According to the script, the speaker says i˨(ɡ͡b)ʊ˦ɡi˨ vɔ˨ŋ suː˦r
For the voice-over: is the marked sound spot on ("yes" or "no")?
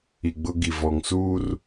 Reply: yes